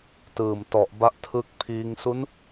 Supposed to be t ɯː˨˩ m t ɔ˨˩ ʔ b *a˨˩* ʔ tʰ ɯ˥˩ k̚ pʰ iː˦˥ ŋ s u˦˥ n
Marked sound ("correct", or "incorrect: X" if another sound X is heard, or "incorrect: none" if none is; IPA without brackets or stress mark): incorrect: a˦˥